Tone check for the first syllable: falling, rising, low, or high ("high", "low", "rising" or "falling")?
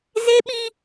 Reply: high